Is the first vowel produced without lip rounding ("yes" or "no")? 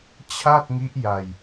yes